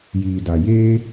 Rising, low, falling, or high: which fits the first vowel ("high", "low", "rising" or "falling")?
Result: low